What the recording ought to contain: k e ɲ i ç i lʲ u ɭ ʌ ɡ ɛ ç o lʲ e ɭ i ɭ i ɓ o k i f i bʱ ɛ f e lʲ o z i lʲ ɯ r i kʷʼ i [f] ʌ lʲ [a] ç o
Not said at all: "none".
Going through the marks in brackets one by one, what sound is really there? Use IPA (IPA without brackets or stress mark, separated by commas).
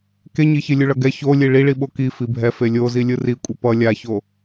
p, a